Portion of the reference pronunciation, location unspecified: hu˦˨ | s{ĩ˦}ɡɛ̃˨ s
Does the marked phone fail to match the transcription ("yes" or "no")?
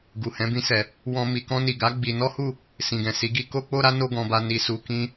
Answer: yes